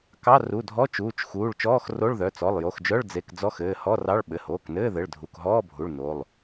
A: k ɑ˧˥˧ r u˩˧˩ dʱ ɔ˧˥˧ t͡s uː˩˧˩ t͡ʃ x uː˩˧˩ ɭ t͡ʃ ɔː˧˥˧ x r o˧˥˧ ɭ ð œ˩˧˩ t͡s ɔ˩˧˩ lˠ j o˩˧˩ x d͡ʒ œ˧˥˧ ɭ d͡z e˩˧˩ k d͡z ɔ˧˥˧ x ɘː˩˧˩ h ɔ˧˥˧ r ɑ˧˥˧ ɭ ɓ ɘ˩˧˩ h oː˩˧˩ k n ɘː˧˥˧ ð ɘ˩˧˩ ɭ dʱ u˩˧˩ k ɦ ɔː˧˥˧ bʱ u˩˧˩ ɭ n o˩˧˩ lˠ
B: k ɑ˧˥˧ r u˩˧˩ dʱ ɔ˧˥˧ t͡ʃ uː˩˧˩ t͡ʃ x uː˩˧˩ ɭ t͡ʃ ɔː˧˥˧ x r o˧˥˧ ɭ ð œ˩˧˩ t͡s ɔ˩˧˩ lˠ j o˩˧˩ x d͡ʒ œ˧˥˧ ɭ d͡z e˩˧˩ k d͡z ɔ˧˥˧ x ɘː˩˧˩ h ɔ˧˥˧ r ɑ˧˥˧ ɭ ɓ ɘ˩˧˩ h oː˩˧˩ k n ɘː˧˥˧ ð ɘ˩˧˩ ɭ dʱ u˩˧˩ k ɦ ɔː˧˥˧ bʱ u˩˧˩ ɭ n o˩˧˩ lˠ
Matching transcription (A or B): B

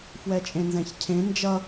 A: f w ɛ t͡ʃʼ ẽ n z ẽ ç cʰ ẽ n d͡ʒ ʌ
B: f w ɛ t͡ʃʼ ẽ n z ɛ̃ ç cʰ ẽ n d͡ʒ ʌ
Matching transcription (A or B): B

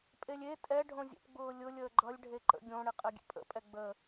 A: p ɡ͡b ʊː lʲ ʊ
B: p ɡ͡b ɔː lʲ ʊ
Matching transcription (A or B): A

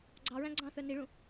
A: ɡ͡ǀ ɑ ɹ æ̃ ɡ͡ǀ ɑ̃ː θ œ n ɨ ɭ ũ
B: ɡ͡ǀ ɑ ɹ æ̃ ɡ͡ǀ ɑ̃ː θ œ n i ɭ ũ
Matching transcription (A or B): B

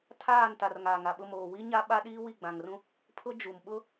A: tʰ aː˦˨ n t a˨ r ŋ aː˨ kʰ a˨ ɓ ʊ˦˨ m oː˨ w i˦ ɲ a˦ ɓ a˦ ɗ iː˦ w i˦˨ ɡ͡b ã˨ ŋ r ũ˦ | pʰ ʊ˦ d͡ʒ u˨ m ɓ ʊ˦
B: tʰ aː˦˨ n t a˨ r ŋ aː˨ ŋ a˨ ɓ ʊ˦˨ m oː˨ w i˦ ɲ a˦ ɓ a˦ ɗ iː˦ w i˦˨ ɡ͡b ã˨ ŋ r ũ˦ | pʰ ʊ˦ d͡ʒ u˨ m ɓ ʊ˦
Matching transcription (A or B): B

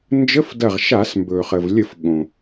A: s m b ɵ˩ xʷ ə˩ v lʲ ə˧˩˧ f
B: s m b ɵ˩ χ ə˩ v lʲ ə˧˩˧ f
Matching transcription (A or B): B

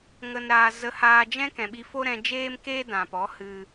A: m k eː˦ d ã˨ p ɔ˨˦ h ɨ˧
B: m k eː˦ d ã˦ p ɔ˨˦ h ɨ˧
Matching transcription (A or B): A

